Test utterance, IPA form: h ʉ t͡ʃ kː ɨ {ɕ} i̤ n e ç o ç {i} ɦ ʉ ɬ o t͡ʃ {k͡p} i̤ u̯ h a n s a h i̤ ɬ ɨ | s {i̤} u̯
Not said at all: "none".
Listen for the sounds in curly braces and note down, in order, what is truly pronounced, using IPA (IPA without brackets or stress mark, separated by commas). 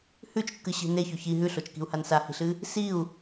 ɕ, i, k, i